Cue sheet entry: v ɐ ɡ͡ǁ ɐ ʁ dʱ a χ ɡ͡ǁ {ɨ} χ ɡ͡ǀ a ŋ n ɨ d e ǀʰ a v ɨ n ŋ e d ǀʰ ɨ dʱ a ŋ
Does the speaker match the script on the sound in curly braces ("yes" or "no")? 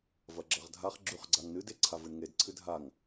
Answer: no